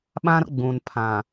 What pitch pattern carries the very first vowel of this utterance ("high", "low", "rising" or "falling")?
high